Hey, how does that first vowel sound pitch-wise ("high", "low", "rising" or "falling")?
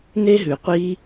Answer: high